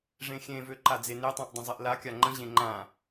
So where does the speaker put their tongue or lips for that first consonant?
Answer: retroflex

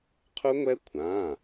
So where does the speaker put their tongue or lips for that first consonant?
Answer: uvula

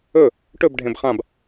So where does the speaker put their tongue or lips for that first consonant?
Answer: retroflex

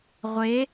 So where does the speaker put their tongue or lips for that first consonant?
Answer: uvula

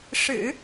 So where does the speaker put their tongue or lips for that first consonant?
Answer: retroflex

